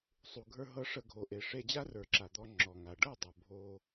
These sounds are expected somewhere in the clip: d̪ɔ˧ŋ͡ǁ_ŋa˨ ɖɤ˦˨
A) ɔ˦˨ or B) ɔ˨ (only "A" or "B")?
B